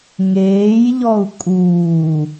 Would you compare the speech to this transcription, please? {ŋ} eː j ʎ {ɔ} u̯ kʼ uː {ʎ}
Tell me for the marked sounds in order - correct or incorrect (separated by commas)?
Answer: correct, correct, incorrect